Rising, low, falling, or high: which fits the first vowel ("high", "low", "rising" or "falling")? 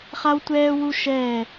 high